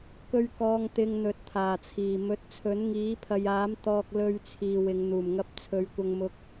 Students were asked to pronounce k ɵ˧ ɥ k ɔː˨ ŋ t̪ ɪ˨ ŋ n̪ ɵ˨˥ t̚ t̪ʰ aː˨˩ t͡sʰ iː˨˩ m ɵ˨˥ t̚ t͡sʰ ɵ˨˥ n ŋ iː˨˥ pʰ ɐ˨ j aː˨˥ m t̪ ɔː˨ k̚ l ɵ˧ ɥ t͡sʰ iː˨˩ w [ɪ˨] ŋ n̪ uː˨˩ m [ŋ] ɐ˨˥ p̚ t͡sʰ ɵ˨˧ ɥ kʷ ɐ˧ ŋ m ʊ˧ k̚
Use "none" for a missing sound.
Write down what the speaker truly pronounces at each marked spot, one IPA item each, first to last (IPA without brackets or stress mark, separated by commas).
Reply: ɪ˨˧, ŋ